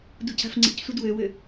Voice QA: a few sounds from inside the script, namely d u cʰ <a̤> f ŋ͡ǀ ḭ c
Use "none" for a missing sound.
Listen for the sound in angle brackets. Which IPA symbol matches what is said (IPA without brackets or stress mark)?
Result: a̤